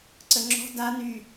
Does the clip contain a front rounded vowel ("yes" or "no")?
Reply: yes